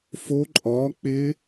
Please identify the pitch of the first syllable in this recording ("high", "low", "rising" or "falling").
rising